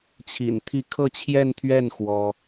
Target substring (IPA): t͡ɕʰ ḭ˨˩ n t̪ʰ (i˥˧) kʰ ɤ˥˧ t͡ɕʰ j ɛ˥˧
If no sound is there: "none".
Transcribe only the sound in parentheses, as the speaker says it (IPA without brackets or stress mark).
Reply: i˥˧